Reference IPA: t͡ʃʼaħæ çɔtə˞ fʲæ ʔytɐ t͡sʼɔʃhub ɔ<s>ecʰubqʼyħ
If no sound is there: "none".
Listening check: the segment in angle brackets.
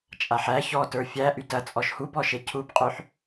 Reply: ʃ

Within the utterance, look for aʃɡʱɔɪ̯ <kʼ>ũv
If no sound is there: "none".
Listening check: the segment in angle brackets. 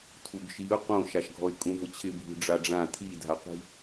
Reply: kʼ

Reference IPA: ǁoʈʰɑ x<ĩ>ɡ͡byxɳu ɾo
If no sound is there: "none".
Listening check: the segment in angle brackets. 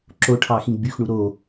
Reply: ĩ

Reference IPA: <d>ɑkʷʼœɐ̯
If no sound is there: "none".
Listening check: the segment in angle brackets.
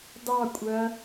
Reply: d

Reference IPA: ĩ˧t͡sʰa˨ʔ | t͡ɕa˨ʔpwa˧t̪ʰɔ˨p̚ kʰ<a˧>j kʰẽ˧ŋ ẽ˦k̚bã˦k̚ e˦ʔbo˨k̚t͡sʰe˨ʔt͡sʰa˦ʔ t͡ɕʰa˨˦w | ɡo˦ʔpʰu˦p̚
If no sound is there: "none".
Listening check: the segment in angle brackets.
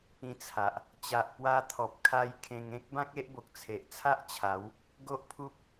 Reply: a˧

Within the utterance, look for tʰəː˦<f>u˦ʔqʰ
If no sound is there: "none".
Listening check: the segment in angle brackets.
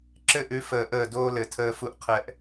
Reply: f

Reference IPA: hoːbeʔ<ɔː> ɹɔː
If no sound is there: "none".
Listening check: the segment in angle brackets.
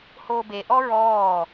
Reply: ɔ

